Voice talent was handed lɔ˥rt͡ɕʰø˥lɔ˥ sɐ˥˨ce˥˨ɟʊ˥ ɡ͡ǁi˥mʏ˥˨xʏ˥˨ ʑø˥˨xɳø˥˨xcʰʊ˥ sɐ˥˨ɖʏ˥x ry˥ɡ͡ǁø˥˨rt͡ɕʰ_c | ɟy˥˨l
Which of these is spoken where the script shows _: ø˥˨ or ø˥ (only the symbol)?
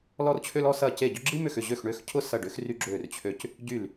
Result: ø˥˨